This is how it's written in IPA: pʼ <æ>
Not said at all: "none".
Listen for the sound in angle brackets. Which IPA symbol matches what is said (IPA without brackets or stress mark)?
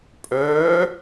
œ